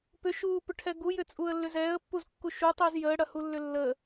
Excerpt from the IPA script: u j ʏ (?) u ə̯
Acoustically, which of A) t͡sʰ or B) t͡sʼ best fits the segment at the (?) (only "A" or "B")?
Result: B